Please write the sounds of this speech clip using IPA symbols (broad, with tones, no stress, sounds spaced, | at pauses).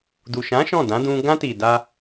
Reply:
d u˨ ʃ ã˨˦ ʃ ɔ̃˦˨ d ã˨˦ d ũ˧ ɡ ã˧ t i˨ d a˧